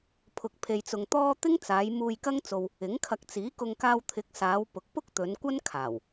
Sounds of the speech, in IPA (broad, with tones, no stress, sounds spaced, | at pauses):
pʰ ʊ˧ k̚ pʰ e˧ j t͡s ʊ˧ ŋ t̪ ɔː˥ t̪ ɪ˥ ŋ t͡s aː˨˧ j m uː˧ j k ɐ˥ ŋ t͡s o˧ w | ɪ˨˥ ŋ kʰ ɐ˧ k̚ t͡s iː˨˥ k ʊ˧ ŋ k aː˧ w t̪ʰ ɪ˨˥ k̚ s aː˨˧ w p ʊ˨ k̚ p ʊ˥ k̚ t̪ ɵ˨˧ n kʷ ɐ˥ n kʰ aː˨˩ w